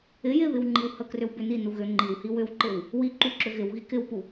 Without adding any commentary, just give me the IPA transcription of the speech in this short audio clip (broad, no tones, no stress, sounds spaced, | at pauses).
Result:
ɪ j ɪ β ɪ w ŋ͡ǃ i w h ə k r ʏ w b ʏ n i n u ɣ ʏ ŋ͡ǃ i w h i w ʏ w ǃ ɪ w | w i ǃ u ǁ ʏ ɣ ɪ w ɣ i k ɪ w p u